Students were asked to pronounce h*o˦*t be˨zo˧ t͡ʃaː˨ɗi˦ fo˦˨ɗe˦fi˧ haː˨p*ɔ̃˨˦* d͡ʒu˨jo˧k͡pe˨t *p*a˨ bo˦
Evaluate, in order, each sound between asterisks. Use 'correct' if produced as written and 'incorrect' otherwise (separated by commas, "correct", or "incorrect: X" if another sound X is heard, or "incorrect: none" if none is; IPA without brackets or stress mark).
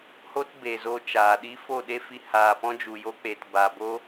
correct, incorrect: ɔ̃˦, incorrect: b